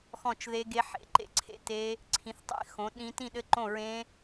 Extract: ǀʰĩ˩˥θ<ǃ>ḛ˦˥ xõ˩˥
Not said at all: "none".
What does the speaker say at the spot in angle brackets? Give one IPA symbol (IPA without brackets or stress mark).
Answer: tˤ